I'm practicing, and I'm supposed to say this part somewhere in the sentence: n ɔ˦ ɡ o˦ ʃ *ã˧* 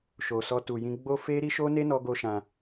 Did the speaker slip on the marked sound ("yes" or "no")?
no